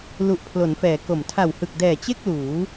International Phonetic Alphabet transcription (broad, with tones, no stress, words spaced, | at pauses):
lu˨˩ʔpʰlo˩˦nfɛː˩˦ ko˨˩m tʰa˨˩whɯ˨˩k̚dɛː˨˩ t͡ɕe˥˩k̚ luː˩˦